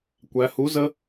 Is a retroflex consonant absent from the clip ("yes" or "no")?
yes